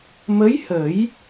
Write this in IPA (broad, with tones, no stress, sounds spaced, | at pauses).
m ə˧˥ j h ə˨˩˦ j